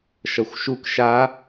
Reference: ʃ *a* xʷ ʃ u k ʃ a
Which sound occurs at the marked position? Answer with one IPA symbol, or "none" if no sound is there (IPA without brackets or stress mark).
ʌ